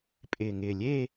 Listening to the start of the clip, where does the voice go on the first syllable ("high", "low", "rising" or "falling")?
low